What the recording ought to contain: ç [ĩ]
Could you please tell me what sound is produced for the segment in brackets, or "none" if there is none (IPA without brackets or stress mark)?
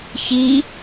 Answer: i